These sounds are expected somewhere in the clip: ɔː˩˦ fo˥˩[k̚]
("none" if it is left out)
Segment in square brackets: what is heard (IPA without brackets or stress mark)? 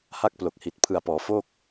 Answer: k̚